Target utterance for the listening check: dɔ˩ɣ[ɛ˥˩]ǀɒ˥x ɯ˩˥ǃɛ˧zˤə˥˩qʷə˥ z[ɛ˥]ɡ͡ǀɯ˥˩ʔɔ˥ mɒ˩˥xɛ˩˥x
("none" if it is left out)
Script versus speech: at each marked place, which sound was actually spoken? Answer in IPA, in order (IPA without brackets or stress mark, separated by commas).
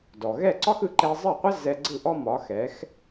ɛ˥˩, ɛ˧